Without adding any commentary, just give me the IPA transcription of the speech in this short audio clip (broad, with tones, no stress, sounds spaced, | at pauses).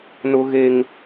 n ʊ˦ ɣ e˦ ŋ